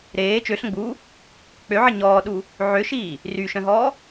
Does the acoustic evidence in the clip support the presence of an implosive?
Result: yes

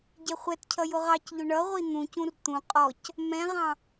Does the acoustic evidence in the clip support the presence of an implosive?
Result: no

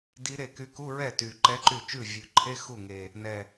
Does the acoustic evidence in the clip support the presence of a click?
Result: yes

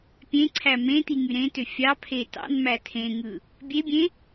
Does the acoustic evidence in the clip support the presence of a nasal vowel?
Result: yes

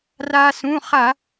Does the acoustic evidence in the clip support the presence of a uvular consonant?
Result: yes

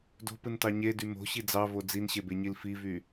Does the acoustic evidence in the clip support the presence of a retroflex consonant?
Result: no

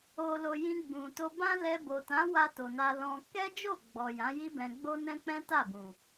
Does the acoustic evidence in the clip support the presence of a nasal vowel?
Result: yes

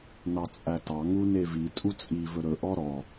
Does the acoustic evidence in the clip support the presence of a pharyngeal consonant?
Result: no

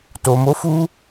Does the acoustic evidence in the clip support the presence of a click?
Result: no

